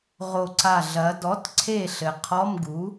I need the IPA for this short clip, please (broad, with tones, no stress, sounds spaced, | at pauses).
ʁ o˧˩ ǀ a˧˩ ɮ ɐ˩˧ d ɔ˩˥ t ǀʰ e˧˩ ɬ ɘ˩˧ qʰ ɔ˧˥˧ m ɡ u˩˥